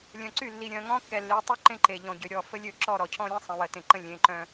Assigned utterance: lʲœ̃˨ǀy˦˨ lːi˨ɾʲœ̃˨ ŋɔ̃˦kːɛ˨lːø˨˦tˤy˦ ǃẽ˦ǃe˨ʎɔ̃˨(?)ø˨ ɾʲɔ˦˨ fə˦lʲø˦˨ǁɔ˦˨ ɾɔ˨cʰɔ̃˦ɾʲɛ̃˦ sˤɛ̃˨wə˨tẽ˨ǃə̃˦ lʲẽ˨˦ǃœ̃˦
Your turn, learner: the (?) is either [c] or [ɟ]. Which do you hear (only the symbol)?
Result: ɟ